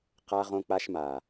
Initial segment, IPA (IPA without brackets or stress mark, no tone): q